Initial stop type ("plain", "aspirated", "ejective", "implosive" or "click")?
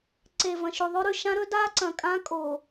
click